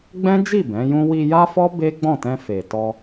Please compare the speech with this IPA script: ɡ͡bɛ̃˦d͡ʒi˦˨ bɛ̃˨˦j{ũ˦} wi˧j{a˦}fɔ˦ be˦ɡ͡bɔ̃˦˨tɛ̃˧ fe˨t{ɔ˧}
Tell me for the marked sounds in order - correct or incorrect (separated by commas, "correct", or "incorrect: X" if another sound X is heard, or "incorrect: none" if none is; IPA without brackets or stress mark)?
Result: correct, correct, correct